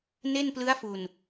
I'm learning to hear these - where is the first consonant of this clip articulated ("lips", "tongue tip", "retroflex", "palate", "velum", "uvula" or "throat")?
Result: tongue tip